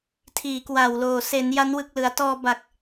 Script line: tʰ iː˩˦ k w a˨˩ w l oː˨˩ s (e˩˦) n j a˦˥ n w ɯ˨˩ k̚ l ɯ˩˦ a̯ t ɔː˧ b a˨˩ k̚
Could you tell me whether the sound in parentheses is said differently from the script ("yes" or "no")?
no